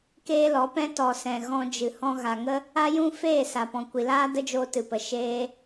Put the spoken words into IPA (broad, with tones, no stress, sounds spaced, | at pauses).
k eː˦ l ɔ˨˦ p ɛ̃˦ t ɔ˨ s ɛ̃˨ ɣ ɔ̃˧ d͡ʒ ɨ˨ h ɔ̃˧ ɣ a˨ ŋ ə˦ | a˦ j ũ˦ f eː˦˨ s a˨ p ɔ̃˨ kʷ i˨ l aː˦ d ə˦ d͡ʒ oː˧ t ɨ˨ p ə˨ ʃ eː˦